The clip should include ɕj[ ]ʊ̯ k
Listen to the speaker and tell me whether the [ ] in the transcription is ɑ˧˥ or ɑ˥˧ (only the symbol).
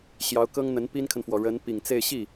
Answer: ɑ˧˥